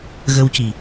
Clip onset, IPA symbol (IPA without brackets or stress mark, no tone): ɣ